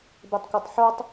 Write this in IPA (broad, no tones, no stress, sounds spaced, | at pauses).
b e tˤ kʷ œ tˤ ħ o tˤ